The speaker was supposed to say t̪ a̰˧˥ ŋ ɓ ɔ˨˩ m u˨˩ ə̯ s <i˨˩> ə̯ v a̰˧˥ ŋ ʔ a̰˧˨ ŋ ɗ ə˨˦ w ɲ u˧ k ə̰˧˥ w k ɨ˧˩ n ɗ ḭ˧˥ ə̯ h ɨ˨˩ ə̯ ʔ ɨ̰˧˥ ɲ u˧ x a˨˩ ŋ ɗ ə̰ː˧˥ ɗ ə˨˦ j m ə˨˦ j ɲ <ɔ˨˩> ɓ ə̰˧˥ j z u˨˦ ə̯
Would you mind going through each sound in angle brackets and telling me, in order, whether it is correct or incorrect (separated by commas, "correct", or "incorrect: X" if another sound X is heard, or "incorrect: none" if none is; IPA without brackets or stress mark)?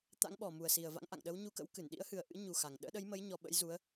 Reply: correct, correct